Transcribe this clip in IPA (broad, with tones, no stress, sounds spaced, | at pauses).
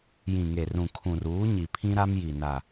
j ĩ˨ ŋ e˨ r ũ˨ kʰ ũ˨ r uː˨˦ ɲ i˨ pʰ ĩ˦ ɾ a˦ m j i˨ n a˨